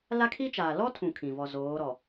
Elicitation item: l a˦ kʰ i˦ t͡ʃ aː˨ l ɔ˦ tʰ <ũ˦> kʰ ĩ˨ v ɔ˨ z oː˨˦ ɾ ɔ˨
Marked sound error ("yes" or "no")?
yes